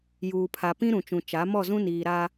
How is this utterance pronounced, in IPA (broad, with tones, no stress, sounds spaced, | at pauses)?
j uː˨ pʰ a˨ p ĩ˦ ɾ ũ˨ t͡ʃ ũ˨ t͡ʃ a˨˦ m ɔ˦˨ z ũ˦ n iː˨ ɾ a˦